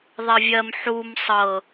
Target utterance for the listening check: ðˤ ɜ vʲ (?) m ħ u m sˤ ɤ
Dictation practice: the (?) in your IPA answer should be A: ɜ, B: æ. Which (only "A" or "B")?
A